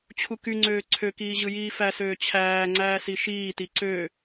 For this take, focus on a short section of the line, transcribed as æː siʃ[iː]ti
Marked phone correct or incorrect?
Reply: correct